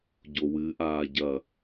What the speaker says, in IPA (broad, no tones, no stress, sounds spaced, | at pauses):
ɟ o w ɨ ʔ aː ɟ ɐ